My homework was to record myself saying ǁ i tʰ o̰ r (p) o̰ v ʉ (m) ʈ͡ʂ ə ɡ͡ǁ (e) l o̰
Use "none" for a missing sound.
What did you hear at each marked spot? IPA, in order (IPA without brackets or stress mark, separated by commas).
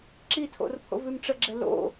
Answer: pʰ, m, ɛ